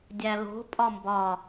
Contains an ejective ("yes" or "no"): yes